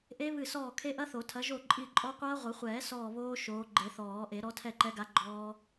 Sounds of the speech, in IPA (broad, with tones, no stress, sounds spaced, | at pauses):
ʔ e˦˥ β ɨ˦˨ s ɔː˦˨ kʰ e˦˥ ʔ ɐ˦˥ θ o˨˩˦ tʰ ɐ˨˦ ʒ o˦˨ ǃʼ i˦˨ ǃʼ ɔ˦˥ qʷ ɐː˦˥ ʁʷ ɘ˨˩˦ χʷ ɛː˨˩˦ s ɔː˦˨ β oː˦˥ ʃ oː˨˦ ɡ͡ǃ e˨˩˦ θ ɔː˨˩˦ ʔ e˨˩˦ ɾ ɔ˨˦ tʰ ɛ˦˨ ǃ ɛ˨˦ ɡ a˨˦ ɡ͡ǃ ɔː˦˥